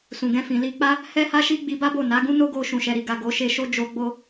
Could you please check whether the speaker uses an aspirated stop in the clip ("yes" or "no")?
no